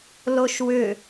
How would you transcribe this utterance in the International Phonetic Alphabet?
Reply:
l o ʃ w ʏ

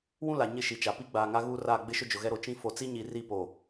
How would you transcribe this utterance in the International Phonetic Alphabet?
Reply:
w ũ˦ l a˨ ɲ ɪ˦˨ ʃ i˨ t͡ʃ a˨ p i˦ ɡ͡b aː˨ ŋ a˦ ɣ uː˦ r aː˦˨ ɡ͡b ɪ˦ ʃ ʊ˦ d͡ʒ ʊ˨ ɣ ɛ˦ ɾ o˨ t͡ʃ ĩ˦ f o˨ t͡s i˦ ɲ i˨ r i˦˨ p o˨

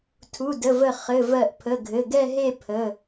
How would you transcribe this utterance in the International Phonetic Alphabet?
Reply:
tʰ u˩˧˩ d ə˩˧˩ v ə˧˩ χ ɘ˩˧˩ v ɜ˧˩ ʔ pʰ ə˩˧˩ ɡʱ ɘ˩˧˩ ɡ ɛ˥˧ ɦ e˥˧ pʰ ə˩˧˩

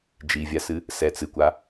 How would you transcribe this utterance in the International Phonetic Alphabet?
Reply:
d͡ʒ i vʲ a s ɨ | s ɛ t͡s ɨ kʷ a

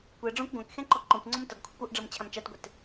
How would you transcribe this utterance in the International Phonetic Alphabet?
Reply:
kʷ ɛ ɖ͡ʐ ɔ̃ kʷ ɡʷ ã k x ɛ̃ ǃ ɔ ǃ ɔ̃ kʷ ŋ͡ǀ ɔ m t ʌ ɡ kʷʰ ʌ kʷ ɔ ʔ ɖ͡ʐ ʌ m t͡ɕʰ ã m t͡ʃ a t ɡʷ ɛ t

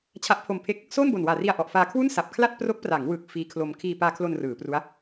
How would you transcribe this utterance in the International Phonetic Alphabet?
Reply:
t͡ɕʰ a˦˥ ʔ pʰ o˧ m pʰ e˥˩ k̚ | s oː˥˩ n b o˨˩ n w aː˨˩ r i˧ a̯ ʔ ɔ˨˩ ʔ f aː˧ kʰ w u˥˩ n s a˨˩ p̚ kʰ l a˥˩ t̚ p r o˦˥ k̚ p r a˩˦ ŋ w ɯ˨˩ k̚ f iː˦˥ kʰ l o˧ m kʰ iː˧ p aː˧ kʰ l o˧ n r ɯː˩˦ p r u˦˥ a̯

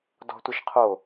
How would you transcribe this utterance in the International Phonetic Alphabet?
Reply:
d ɔ̤ tʷ ə ʃ qʰ o

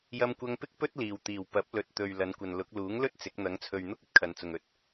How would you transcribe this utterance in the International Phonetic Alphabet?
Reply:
j ɐ˧ m kʷ ɐ˧ ŋ p ɪ˥ k̚ p ɵ˥ t̚ l iː˨˩ w t̪ iː˨˩ w p ɐ˨˥ p̚ l ɵ˨ t̚ t̪ ɵ˨ ɥ l ɐ˨˧ n kʷ ɐ˨ n l ʊ˨˥ k̚ l uː˨˥ ŋ l ɵ˥ t̚ t͡s ɪ˨˥ k̚ n̪ ɐ˨˧ ŋ t͡sʰ ɵ˨ ɥ n̪ ʊ˥ k̚ ɵ˥ t̚ kʰ ɐ˨ n t͡s ʊ˨ ŋ ɵ˨ t̚

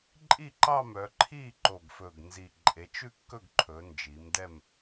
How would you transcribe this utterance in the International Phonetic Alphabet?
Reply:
ǃʼ i˥˨ ǃ ɑ˥˨ m œ˩˧ ǃʰ i˥˨ ǃ o˨˩ ɡ f ɵ˨˩ ɡ n z i˨˩ ǃʼ e˩˧ t͡ʃ ʉ˥˨ kː ɵ˥˨ ɡ ǃʰ ɵ˩˧ n d͡ʒ i˩˧ m d ɛ˥˨ m

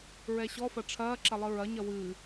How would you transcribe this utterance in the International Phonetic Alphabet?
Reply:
ɹ ɛ ɕ ɔ f ɐ ʈ͡ʂʰ ɐː ǁ ɐ lˠ ɨ ɹ ɐ ɲ ɐ w ɨ

